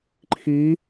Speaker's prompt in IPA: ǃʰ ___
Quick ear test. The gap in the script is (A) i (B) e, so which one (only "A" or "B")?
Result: A